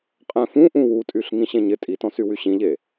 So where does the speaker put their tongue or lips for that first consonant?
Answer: uvula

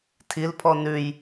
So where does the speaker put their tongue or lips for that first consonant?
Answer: tongue tip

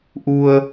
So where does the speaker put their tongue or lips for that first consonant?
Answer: throat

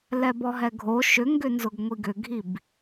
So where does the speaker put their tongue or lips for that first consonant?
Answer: tongue tip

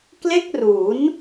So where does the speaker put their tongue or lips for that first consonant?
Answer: velum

